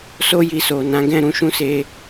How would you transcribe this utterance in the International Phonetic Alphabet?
so˦ ji˧so˨ nã˨˦ɡɛ̃˦˨ ɾũ˧ʃũ˧se˧

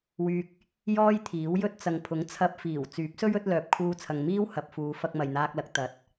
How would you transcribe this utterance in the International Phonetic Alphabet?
wyː˧k̚ | jɔː˥jt̪ʰiː˨˥wjɵ˥t̚ t͡sɐ˨ŋpʰʊ˨˥ŋt͡sʰɐ˧p̚ fiː˨˩wt͡syː˨˥p̚ sɵ˥ɥɵ˨˥t̚lœː˨p̚ kʰuː˧t͡sʰɐ˨ŋmiː˥w hɐ˨p̚fuː˨˧fɐ˧k̚ mɐ˨jn̪aː˧k̚lɐ˨˥k̚ t̪ɐ˨˥t̚

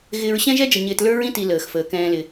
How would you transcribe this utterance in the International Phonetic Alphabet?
ɣɪː˨ɹɕɛ̃˦ʒɛ˦d͡ʒə˨ ɲɪː˨tlə˞˦ɹĩ˦ti˨ ləː˨xfəː˨kɛ̃ː˦lɪ˦

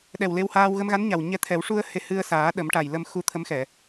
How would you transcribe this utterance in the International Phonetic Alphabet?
ɗɛ˨˩wle˧whaː˧w ɣə˧mɣa˧˥nɲa˨˩w ɲɛ˧˥t̪ʰɛ˨˩˦w ʂu˧ə̯ he˧hɨ˧ə̯saː˨˩˦ ɗə˨˩˦mʈa˨˩j lə˧mxu˧t̪ʰə˧˥mxɛ˨˩˨

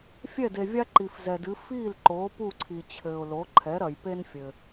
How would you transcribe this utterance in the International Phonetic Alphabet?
fʲɛ˥˩de˩vʲa˥ ǃi˩fzɛ˩dɨ˩˥ fiː˥˩l ǃoː˩˥pu˥˩ǀʰi˩t͡ɕʰɘː˩ʊ̯ lo˩˥ ǃʰɛ˩˥ɾɐ˩j pe˥nfʲɘ˩

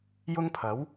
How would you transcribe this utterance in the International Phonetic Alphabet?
jʊ˥ŋpʰɐ˨˥w

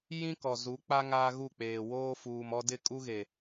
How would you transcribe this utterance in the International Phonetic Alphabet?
jĩ˦kɔ˨zu˨˦k͡pa˦ ŋaː˦ɣu˦˨k͡peː˨ woː˦fuː˨mɔ˦ dɪ˦˨kʼu˦ɣe˨

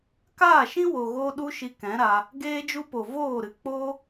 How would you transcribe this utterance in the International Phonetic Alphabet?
kaː˦˨ʃĩ˦wo˨ɣoː˧ ɗu˦ʃi˧ kɛ̃˨˦ɾa˧ | ɡeː˦d͡ʒu˦po˨ voː˦˨ ɾɨ˧ k͡po˦

